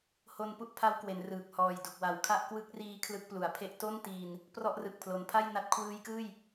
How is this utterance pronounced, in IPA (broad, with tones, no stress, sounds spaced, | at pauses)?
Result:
h o˧ n p u˥˩ ʔ pʰ a˦˥ w k w e˩˦ n r ɯː˨˩ k̚ h ɔː˨˩ j d u˨˩ k̚ w a˩˦ w kʰ a˦˥ ʔ k w ɯ˦˥ k̚ r iː˦˥ kʰ l ɯ˦˥ k̚ p l u˨˩ a̯ pʰ e˥˩ ʔ t o˥˩ n t iː˧ n | p r ɔ˦˥ ʔ r ɯ˨˩ k̚ pʰ l o˩˦ n pʰ a˥˩ j n a˦˥ t̚ kʰ w ɯː˦˥ j k ɯː˥˩ j